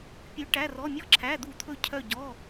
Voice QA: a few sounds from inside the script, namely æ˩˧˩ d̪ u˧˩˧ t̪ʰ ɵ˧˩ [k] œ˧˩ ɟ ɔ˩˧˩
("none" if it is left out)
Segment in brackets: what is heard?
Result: cʰ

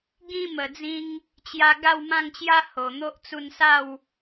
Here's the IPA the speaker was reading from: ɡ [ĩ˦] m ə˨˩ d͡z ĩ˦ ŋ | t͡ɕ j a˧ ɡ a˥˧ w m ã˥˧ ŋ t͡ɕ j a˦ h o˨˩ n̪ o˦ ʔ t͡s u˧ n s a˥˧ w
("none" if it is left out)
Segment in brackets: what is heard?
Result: ĩ˦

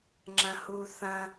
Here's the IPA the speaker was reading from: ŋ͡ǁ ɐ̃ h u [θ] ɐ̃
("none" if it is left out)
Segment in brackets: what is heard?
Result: θ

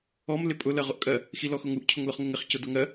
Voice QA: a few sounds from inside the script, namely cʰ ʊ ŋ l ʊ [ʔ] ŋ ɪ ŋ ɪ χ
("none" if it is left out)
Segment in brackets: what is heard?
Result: χ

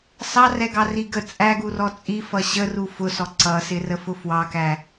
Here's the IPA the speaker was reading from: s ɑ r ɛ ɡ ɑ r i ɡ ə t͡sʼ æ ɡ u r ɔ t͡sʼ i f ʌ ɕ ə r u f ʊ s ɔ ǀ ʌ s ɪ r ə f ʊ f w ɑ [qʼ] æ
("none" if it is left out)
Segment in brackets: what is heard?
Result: k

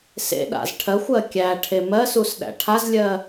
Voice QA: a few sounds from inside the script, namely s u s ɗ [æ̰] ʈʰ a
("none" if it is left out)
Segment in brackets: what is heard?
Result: æ̰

